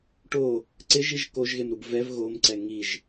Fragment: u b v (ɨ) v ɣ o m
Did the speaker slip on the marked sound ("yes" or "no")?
yes